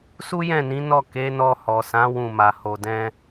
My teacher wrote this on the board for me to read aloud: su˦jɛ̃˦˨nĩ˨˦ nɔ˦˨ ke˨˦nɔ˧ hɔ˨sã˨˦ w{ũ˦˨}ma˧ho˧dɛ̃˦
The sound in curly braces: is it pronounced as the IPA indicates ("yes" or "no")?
yes